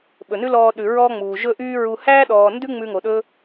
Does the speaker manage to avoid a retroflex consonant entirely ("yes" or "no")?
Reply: yes